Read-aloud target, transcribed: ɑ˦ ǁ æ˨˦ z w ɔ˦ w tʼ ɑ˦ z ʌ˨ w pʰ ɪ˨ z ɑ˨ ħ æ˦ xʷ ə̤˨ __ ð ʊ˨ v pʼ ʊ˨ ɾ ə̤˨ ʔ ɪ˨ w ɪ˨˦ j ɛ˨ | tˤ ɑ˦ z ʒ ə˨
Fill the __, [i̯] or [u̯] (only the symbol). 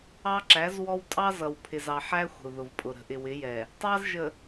u̯